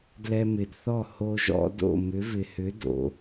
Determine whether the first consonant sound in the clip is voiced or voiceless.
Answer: voiced